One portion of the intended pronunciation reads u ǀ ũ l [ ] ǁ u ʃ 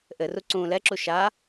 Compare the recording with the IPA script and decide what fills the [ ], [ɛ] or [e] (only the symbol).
ɛ